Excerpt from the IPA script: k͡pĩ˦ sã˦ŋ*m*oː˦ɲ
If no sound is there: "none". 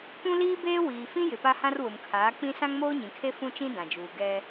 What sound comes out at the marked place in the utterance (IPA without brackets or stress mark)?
m